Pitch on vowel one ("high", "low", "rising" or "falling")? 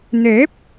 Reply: rising